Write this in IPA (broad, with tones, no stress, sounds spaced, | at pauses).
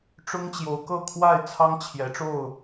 ʈ͡ʂ ʊ˦ ŋ t͡ɕ j o˨˦ ʊ̯ k ɤ˥˨ kʰ w a˥˨ ɪ̯ t͡sʰ ɑ˦ ŋ t͡ɕʰ j ɛ˨˦ ʈ͡ʂ o˥˨ ʊ̯